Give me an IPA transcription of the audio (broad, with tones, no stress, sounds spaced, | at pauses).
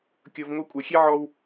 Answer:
kʲ ɤ˧ v ŋ o˧ kʷʼ ɤ˨ xʲ e˦ ʕ ɔ˧ w